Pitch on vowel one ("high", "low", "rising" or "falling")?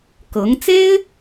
rising